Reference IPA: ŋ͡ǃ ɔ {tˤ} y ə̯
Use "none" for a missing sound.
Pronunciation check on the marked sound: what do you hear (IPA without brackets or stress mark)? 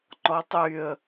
tˤ